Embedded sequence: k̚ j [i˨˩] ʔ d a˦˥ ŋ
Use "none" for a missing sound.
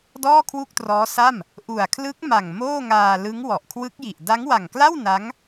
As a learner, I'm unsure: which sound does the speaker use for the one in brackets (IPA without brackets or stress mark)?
i˨˩